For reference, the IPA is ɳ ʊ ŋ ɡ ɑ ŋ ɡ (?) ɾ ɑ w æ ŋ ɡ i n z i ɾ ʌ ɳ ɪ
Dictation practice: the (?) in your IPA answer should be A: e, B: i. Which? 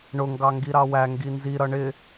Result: B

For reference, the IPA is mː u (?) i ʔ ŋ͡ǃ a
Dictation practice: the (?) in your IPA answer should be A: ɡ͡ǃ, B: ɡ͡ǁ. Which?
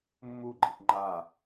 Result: A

